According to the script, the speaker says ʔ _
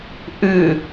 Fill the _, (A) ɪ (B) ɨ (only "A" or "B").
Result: B